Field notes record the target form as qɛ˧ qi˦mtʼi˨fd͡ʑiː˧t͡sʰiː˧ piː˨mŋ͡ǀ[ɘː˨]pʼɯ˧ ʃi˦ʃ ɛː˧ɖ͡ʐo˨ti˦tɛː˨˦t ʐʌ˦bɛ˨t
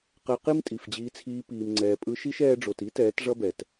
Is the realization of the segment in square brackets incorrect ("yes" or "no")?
yes